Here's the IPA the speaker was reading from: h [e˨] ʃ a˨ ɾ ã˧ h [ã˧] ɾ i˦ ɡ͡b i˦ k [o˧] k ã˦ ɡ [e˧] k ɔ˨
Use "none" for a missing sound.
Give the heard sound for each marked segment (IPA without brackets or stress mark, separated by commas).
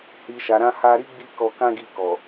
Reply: i˨, a˧, ɔ˧, i˧